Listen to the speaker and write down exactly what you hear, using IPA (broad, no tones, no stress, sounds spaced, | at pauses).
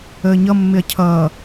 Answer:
əː ɲ ʌ mː ɪ ɐ̯ cʰ ʌː